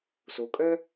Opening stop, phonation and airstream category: ejective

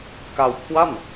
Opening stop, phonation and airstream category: plain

